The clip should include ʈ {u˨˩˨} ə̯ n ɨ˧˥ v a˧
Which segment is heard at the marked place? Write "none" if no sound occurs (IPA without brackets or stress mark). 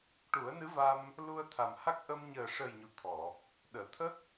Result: u˨˩˦